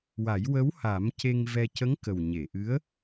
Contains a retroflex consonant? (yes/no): no